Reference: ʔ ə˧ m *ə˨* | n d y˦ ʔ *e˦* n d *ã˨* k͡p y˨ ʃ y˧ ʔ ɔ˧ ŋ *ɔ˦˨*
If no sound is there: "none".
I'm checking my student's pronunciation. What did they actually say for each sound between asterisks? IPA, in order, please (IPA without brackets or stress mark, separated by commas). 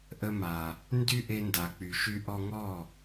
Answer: a˨, e˧, a˨, ɔ˦˨